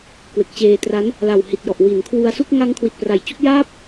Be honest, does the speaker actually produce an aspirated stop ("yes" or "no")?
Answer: yes